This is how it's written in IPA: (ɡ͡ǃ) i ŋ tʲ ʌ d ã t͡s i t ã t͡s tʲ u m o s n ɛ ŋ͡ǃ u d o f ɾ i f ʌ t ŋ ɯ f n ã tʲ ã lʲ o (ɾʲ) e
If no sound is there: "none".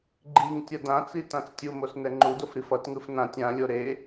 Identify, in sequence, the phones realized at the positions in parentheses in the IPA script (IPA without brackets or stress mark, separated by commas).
ɡ͡ǃ, ɾ